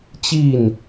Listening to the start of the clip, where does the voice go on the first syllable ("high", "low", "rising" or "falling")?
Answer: falling